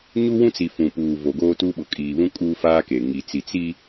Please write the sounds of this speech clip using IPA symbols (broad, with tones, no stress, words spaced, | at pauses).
ɲu˦wũ˦t͡si˨ fũ˨puː˨ vo˨ɡoː˦tu˦ ɓʊ˨kʼiː˨ βũ˦kʼuː˦faː˦ke˨ ŋi˨t͡si˨ t͡si˦